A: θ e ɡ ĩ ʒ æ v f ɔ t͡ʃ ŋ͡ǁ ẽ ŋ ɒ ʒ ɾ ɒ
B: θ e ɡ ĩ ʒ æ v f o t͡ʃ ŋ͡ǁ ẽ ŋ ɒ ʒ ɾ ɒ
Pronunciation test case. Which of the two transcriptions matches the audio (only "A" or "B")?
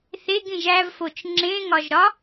B